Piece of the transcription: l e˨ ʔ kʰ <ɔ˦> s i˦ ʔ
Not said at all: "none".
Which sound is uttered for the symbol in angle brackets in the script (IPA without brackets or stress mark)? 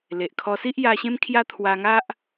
ɔ˧